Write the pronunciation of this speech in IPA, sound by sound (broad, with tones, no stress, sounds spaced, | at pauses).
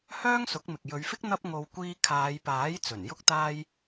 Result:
h œː˥ ŋ s ʊ˨˥ k̚ m ɪ˨ k̚ j ɵ˨˧ ɥ f ɪ˥ k̚ n̪ ɐ˥ p̚ ŋ o˧ w kʷ iː˧ kʰ aː˨˧ j p aː˨˥ j t͡s ɵ˨˩ n j ʊ˥ k̚ t̪ aː˥ j